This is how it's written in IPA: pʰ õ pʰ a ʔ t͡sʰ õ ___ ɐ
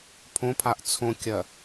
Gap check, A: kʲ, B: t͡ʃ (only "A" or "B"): A